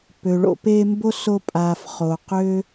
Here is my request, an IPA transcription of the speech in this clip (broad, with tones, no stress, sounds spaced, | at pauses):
p ø˩ ɭ o̰˨ p eː˦ m b o˥ s o˦ pʼ aː˨ f χ o˨ q ø˥